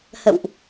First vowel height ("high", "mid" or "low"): mid